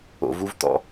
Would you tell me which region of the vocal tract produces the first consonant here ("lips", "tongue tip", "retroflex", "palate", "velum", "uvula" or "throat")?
lips